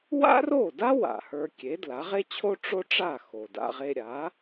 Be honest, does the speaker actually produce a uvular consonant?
yes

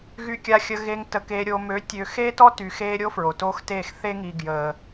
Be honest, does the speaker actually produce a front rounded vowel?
yes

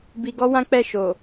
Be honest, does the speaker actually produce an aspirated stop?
no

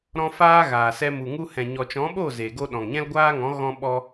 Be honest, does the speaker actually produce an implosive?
yes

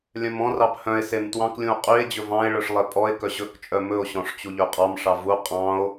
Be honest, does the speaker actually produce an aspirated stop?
no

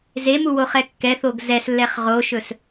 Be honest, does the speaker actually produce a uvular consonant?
yes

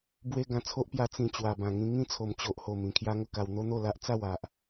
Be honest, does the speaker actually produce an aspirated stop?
yes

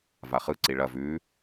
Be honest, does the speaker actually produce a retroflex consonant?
yes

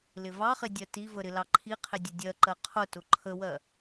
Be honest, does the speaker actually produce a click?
yes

